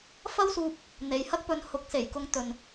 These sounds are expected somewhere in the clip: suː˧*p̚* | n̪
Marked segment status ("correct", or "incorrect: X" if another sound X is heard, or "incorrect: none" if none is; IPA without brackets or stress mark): correct